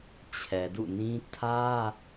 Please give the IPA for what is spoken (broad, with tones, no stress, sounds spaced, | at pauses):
t͡ɕʰ ɛ˨ d ṵ˦˨ n ĩ˦ tʰ ä˦